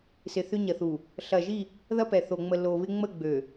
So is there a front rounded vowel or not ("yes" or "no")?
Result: yes